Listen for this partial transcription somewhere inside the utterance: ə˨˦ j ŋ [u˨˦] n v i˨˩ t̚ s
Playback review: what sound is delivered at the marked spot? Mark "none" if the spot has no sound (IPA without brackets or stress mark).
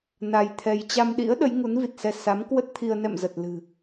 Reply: u˨˦